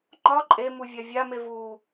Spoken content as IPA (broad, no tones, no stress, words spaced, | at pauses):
ŋ͡ǃɒ ǃʼemuvʲa vʲame vu